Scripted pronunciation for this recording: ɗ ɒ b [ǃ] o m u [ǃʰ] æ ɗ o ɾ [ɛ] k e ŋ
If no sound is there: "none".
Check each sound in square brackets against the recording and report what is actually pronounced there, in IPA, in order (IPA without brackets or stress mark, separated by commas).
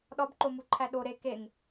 ǃ, ǃʰ, e